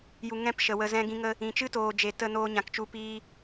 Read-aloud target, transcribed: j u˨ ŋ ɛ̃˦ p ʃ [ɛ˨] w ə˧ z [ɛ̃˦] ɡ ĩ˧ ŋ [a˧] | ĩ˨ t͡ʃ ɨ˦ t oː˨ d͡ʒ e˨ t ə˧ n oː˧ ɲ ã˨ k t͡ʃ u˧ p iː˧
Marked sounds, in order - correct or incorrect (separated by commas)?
incorrect, correct, incorrect